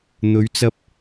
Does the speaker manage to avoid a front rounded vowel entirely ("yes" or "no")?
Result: yes